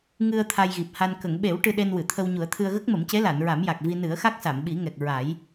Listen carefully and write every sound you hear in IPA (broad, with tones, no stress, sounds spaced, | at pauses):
ŋ ɨ˧ ə̯ t̪ʰ a˧ j ɣ i˨˩ p̚ h a˧ n k ə˨˩˨ ŋ ɓ e˨˩˦ w ʈ ɨ˧ ɗ e˧ n w ɨ˨˩˨ t̪ʰ ə˧ w ɲ u˨˩˦ ə̯ t̪ʰ ɨ˧ ə̯ ɣ ə˦˥ k̚ m ə˨˩˦ m c e˧˥ l a˨˩˨ n ɹ a˨˩˦ m j a˨˩ k̚ v i˧ n ɨ˨˩˦ ə̯ x a˦˥ k̚ s a˨˩˨ m ɓ i˨˩˦ ŋ ɛ˨˩ k̚ ɹ a˨˩˦ j